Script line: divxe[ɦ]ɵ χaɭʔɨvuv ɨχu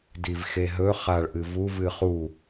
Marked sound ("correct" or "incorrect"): correct